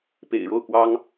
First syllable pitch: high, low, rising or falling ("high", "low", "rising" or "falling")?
low